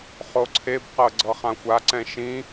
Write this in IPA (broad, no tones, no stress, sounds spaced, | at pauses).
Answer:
χ o ǀʰ e b q ɤ ɡ͡ǀ ɤ χ ã xʷ a ǀ ɛ̃ ʃ ĩ